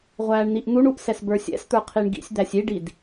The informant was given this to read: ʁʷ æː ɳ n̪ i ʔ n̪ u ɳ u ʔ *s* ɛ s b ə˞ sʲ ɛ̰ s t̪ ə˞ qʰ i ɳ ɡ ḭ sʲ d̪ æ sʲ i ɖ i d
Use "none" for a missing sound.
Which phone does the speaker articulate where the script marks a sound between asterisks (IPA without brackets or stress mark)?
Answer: s